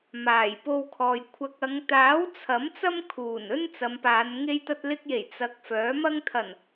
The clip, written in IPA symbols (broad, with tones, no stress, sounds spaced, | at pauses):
m aː˨˩ j p o˧ w kʰ ɔː˨ j kʷʰ ɐ˧ k̚ ɐ˨˧ ŋ t̪ aː˨˥ w t͡sʰ ɐ˨˥ m t͡s ɐ˥ m kʰ uː˨˩ n ɵ˥ n t͡s ɐ˨˧ m p aː˨˧ n ŋ e˧ j t̪ ɐ˧ t̚ l ɪ˧ k̚ j e˨˩ j t͡s ɐ˨˥ k̚ f œː˨˥ m ɐ˥ ŋ t̪ʰ ɐ˨˩ n